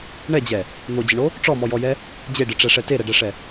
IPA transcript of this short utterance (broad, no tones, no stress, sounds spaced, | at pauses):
ɳ ɛ d͡ʑ ɛ | n̪ o d͡ʑ ə ɳ o | ʈ͡ʂ ɔ m ɔ j ɔ j ɛ | d͡ʑ e ɖ ɨ ʈ͡ʂ ɛ ʂ ɛ t e ɾ ɛ ɖ ɛ ʂ ɛ